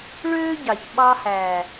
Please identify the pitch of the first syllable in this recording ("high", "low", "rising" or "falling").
high